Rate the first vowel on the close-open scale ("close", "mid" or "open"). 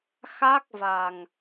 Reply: open